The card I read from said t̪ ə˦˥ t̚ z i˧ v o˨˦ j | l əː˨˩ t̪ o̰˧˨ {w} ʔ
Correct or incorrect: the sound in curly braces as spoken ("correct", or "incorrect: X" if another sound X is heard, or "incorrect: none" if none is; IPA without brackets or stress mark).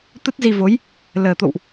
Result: correct